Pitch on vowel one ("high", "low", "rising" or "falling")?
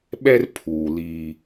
high